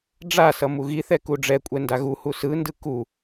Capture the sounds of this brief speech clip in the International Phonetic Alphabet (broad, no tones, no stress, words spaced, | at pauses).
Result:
ɖ͡ʐasʌ muɣiθɛ kuɖ͡ʐɛkʷʼɛ ndaɣuhu sɯndɯ ku